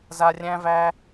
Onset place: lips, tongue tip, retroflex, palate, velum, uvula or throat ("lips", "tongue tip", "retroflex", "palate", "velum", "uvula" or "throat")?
tongue tip